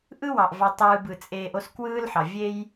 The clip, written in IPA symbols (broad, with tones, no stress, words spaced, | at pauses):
ʔɯ˥wɑ˩ʔvɑ˨ tˤɯː˨bɯ˩t͡sʼeː˨ʔ o˦skwɯː˦lħɑ˩ vʲe˦j